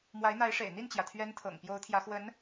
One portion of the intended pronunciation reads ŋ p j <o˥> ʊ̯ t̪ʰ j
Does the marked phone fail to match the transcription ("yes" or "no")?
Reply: yes